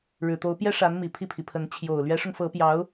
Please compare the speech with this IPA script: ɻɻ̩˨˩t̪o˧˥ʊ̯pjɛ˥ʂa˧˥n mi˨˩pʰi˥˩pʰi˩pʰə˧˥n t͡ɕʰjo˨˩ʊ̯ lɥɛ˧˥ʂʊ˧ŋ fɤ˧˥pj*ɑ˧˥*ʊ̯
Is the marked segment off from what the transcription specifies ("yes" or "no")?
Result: no